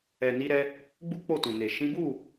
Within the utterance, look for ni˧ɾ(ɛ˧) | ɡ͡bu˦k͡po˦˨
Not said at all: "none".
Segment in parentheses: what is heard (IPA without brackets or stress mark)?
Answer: ɛ˧